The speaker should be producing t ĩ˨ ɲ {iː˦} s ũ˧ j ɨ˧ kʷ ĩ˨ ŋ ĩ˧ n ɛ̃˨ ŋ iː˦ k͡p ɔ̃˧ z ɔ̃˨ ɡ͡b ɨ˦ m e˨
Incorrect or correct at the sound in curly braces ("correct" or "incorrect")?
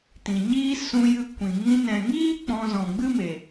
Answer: correct